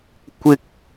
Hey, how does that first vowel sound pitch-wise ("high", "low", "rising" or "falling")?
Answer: high